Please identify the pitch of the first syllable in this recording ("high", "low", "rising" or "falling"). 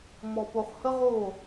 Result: low